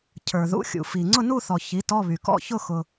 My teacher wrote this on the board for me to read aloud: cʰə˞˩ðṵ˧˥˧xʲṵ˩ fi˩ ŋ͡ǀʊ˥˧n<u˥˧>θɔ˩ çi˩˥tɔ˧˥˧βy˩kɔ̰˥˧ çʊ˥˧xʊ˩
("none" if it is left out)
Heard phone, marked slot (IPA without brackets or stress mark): u˥˧